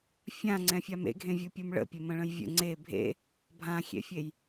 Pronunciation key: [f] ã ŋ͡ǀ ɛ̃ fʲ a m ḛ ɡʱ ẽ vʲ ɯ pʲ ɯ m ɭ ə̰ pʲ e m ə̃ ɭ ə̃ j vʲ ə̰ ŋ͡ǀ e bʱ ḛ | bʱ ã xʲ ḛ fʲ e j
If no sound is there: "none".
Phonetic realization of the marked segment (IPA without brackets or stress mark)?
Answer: fʲ